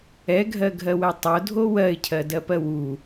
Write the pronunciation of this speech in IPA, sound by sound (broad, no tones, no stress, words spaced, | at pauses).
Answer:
ɛɡʱɜɡʱɜwɛ tˤodʱo wɜɪ̯cʰɜdɜpɜ wu